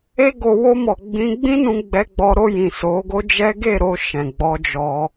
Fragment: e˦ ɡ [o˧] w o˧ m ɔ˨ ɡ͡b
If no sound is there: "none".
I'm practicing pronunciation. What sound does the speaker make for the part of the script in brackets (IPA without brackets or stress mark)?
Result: o˧